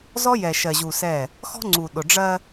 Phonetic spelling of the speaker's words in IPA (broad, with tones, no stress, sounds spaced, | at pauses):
z ɔ˦ j ɛ˨ ʃ ɜ˨ ʑ u˨ s ɛ˦˨ | x ɔ̤˦ ŋ͡ǀ u˨ ɗ ʊ˨ ɖ͡ʐ ɜ˦